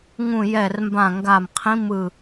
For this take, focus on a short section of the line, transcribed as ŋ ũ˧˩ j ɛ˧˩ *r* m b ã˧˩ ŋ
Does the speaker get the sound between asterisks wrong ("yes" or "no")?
no